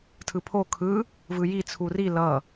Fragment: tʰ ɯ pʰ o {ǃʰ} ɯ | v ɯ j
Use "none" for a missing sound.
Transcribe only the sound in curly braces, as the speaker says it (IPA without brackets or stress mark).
kʰ